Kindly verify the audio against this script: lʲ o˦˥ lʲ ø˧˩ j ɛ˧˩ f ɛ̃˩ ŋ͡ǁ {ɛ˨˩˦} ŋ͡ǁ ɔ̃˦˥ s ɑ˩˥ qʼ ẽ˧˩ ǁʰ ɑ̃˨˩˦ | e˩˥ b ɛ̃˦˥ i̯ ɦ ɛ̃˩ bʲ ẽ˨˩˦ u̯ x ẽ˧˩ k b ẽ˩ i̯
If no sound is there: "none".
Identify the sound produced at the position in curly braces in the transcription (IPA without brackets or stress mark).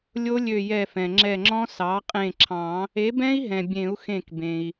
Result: ɛ˧˩